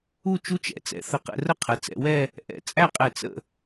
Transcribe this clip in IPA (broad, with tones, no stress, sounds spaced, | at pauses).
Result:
u˥˧ t͡ʃ u˥ t͡ʃ ɛ̰˩˧ t͡s ɛ̰˧ θ ə˧˩ q ɛ̰˧ r ə˥ qʰ ə˩˧ t͡s ɛ̰˩˧ w ɛ˥˧ | ʔ ɛ̰˧˩ t͡sʼ æ˥˧ qʼ ɛ˧˩ t͡s ə̰˥˧